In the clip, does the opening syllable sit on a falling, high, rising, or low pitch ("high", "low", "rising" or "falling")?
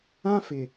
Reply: high